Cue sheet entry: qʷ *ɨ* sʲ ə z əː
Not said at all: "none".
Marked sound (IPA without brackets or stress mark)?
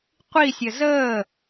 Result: i